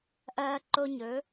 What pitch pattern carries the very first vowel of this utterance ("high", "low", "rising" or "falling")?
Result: high